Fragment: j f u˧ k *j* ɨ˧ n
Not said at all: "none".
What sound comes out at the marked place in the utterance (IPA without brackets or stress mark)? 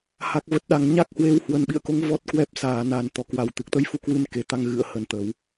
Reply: w